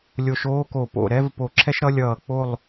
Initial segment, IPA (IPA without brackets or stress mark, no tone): lʲ